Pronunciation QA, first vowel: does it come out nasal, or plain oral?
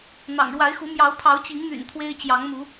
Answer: oral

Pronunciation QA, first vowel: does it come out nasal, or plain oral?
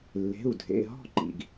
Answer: oral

